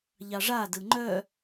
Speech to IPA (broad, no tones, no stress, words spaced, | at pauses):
ʎɑʐadɯ ŋ͡ǃœ